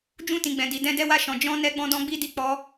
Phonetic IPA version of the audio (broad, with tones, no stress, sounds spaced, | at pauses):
d͡ʒ ũ˧ t ĩ˨ ɡ͡b ɛ̃˨ d i˨ d ɛ̃˧ d ɛ˧ w a˧ ʃ ɔ̃˨ d͡ʒ ɔ̃˧ n ɛ˧ ɡ͡b ɔ̃˧ d ɔ̃˧ ɡ͡b i˧ d i˧ k͡p ɔ˧